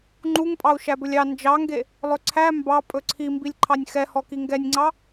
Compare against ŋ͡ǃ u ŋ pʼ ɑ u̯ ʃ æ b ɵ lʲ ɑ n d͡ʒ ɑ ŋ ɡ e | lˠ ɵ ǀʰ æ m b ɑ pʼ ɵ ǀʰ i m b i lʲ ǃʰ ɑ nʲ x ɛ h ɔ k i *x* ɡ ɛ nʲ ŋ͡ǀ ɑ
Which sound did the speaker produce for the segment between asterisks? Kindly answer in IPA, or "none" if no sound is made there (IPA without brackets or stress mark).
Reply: ŋ